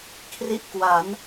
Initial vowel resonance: oral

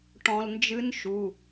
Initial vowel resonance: nasal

